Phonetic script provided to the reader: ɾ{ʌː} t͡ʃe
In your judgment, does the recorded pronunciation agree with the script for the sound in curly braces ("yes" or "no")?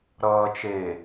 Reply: yes